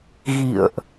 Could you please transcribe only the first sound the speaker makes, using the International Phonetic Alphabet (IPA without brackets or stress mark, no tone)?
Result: ɣ